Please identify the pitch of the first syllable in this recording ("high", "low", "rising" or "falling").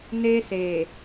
high